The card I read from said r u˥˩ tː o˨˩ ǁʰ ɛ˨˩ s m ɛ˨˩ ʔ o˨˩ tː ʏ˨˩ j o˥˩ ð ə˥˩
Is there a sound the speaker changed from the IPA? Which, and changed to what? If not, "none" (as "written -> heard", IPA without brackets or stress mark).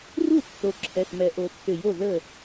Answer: none